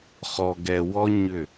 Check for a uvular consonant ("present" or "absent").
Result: present